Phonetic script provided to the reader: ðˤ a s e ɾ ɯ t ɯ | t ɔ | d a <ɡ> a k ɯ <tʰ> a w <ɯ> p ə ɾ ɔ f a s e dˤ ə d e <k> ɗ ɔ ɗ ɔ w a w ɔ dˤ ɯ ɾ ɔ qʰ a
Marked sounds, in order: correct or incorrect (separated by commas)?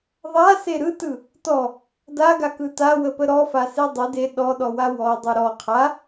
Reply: correct, incorrect, incorrect, incorrect